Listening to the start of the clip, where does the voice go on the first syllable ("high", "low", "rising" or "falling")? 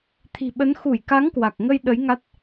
low